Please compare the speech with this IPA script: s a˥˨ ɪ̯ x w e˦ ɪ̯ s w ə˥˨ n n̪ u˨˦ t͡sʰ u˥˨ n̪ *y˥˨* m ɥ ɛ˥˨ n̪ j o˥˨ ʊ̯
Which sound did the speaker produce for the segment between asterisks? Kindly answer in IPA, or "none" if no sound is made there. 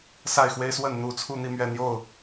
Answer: i˥˨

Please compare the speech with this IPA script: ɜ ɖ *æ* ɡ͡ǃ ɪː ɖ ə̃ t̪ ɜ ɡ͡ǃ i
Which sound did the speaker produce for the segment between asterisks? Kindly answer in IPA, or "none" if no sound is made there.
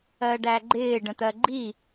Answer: æ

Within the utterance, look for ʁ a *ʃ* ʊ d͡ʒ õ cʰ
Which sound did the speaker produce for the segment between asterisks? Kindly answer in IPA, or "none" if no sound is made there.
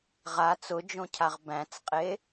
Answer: t͡s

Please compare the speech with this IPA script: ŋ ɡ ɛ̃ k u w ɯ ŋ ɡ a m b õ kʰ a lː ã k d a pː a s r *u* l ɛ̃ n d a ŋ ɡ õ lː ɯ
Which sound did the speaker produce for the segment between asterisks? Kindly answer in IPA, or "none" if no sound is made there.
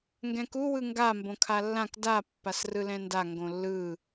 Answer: ɯ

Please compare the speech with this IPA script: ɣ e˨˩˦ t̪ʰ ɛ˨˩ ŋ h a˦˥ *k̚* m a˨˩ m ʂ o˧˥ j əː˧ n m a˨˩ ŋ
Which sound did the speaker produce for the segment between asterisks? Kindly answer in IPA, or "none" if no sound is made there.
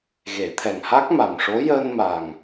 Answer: k̚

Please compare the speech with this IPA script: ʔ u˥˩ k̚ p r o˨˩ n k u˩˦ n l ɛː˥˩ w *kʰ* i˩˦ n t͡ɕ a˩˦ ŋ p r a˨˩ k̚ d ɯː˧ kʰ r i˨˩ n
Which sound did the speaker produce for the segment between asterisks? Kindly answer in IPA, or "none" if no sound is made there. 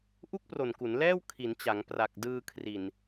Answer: kʰ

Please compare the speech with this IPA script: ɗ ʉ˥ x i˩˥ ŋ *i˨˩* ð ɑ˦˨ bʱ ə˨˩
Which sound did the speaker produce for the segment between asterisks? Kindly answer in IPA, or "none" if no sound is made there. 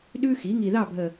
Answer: i˨˩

